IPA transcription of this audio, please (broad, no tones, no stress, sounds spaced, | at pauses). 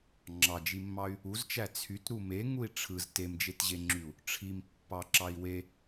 ŋ͡ǁ ɑ d͡ʒ i mː ɑ y̯ | u z t͡ʃ æ t͡sʰ y t ɾ u m e ŋ u i̯ ʈ͡ʂʰ ɯ z t e m d͡ʒ e t ʑ e ŋ͡ǁ y u̯ | ʈ͡ʂʰ i m pː ɑ ǁ ɑ i̯ w e